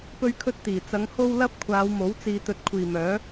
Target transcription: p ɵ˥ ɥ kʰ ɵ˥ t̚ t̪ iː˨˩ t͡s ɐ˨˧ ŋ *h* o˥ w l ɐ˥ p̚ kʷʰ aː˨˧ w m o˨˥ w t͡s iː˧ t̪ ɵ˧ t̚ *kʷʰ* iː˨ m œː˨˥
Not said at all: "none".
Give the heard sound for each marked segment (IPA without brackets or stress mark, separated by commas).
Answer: h, kʷʰ